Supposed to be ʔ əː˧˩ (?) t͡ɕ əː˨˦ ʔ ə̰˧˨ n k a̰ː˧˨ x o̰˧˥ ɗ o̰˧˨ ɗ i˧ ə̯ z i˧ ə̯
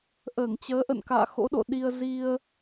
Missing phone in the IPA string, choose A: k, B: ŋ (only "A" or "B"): B